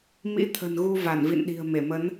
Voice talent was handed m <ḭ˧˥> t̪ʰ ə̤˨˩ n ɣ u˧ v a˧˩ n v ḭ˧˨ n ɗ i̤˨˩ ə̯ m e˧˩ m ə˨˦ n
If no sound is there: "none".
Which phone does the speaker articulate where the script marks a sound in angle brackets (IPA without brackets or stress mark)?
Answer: ḭ˧˥